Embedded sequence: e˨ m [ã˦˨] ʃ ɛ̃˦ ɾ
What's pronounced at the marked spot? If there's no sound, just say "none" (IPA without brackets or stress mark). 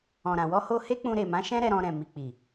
ã˨˦